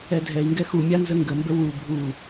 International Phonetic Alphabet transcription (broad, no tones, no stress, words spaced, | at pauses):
ɛdʱɛi̯ŋɡɛ xumʲa nzəŋɡəmbə wu bʱu